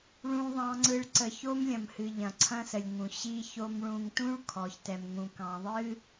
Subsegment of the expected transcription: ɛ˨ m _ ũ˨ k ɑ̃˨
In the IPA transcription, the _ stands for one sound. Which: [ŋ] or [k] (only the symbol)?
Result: ŋ